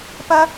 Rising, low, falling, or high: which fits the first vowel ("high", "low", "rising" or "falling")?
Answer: high